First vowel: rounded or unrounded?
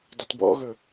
unrounded